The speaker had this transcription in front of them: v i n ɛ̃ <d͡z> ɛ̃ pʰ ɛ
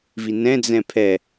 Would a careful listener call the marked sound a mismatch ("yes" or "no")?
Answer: no